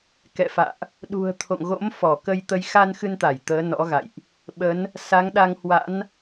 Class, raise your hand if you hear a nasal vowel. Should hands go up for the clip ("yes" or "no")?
no